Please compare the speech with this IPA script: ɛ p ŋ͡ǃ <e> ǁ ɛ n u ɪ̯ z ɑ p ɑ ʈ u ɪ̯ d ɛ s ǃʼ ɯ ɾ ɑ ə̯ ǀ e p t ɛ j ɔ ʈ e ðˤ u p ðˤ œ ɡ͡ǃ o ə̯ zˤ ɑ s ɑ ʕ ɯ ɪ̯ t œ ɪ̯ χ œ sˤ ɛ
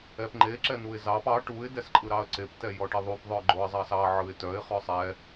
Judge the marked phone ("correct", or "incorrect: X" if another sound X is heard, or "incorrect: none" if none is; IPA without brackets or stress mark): correct